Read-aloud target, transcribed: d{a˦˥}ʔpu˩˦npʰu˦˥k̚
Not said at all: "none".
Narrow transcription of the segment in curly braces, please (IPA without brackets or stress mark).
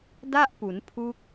a˥˩